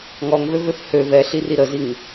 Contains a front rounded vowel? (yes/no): yes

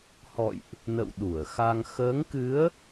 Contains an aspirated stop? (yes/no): no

